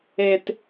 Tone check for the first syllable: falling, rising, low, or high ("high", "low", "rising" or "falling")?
low